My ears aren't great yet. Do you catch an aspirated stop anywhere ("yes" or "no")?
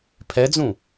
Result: yes